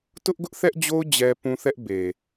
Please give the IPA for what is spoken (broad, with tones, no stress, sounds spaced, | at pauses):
t ʊ˦ ʔ ɡ ʊ˦ ʔ θ ɛ˦ ʔ d͡ʑ o˦ ʊ̯ d͡ʑ ɛ˦ p ũ˦ θ ɛ˦ ʔ b e˨